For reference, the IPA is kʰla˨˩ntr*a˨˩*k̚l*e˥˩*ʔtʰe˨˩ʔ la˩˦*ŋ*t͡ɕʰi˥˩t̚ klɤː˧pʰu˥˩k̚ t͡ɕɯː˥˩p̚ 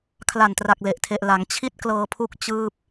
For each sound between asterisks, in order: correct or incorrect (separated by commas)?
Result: correct, incorrect, correct